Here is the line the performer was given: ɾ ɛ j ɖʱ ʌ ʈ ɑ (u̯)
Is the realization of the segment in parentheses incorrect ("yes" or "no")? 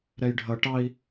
yes